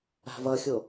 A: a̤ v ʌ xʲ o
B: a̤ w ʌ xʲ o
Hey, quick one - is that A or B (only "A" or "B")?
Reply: A